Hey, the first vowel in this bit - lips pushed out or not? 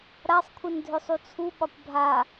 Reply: no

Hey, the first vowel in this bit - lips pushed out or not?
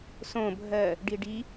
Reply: yes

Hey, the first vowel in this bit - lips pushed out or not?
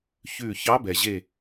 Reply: yes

